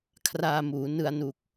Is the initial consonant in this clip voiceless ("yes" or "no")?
yes